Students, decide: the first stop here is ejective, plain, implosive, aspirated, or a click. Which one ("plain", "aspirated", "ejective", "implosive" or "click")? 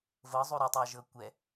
plain